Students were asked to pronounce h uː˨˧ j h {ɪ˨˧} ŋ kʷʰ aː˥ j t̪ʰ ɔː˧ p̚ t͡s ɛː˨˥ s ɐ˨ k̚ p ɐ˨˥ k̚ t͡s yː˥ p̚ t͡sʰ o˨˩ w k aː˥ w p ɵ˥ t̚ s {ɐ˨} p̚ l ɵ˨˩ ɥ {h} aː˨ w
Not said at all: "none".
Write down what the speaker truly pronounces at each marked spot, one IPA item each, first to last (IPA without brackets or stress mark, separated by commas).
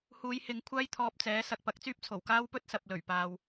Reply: ɪ˨˧, ɐ˨, p